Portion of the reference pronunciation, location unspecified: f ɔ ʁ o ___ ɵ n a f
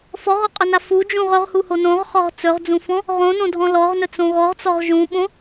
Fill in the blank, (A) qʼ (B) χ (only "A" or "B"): A